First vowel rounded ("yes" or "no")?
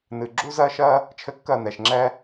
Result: no